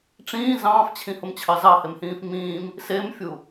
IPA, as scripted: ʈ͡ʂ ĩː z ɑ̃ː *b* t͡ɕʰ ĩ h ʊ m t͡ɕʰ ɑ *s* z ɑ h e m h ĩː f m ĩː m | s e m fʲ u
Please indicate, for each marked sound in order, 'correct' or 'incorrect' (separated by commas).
incorrect, incorrect